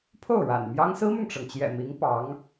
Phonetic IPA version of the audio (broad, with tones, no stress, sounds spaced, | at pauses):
pʰ o˥˩ ʊ̯ ɻ a̰˨˩ n m j ɑ˥ ŋ s ɹ̩˥ m ʊ˨ ŋ ʈ͡ʂ ɤ˩ ŋ t͡ɕ j ɛ̰˨˩ m i˧˥ ŋ p ɑ˧˥ ŋ